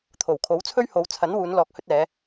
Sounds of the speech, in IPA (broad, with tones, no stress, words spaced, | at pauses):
t̪ʰo˨˩w kʰo˨˥wt͡sʰɵ˥ɥho˨˧wt͡sʰɐ˨˥n wuː˨˧nlɔː˨k̚hɵ˧t̚ɛː˨˧